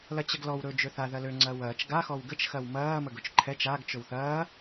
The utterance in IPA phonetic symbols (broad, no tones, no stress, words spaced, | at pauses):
lɐt͡ɕəɡlɔw ɾɵ d͡ʒøθa ðɐlø ŋ͡ǀɐːwɐːt͡ʃ ɡa xɔwɡət͡ʃ xɐwmɐː məɡɵt͡ʃǃʰɛt͡ʃ aɡ t͡ʃɵwθɐː